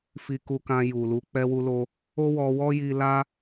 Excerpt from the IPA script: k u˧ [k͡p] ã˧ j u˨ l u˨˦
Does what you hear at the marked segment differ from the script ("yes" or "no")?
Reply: yes